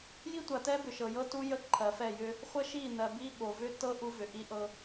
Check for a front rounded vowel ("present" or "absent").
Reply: present